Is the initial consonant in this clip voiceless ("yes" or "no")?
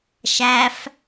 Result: yes